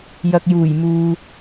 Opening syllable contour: low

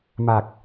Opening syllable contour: low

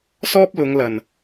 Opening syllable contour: high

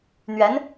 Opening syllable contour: rising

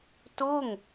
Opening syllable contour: falling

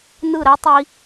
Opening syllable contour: falling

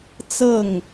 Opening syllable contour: falling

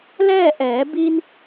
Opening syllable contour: falling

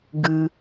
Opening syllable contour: low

